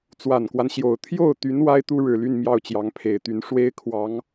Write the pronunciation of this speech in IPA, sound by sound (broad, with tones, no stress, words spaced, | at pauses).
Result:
t͡swa˨˩nkwa˦nɕjo˨˩ʊ̯ t̪ʰjo˥˩ʊ̯t̪y˧˥n wa˥ɪ̯t̪u˥ɻɻ̩˨˩ly˥˧n mjɑ˥˩ʊ̯t͡ɕjɑ˧˥ŋpʰe˨˩ɪ̯t̪y˧˥n ʂwe˥ɪ̯ kʰwɑ˧˥ŋ